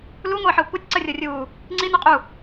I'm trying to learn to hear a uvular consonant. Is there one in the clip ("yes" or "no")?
yes